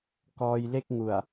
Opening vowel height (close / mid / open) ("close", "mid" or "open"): mid